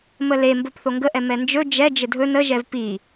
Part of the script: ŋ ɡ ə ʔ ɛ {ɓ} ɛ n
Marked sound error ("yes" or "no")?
yes